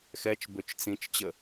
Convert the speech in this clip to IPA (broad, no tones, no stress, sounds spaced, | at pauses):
x ɛ t͡ʃ b ø t͡ʃ t͡s ĩ t͡ʃ t͡ɕ ə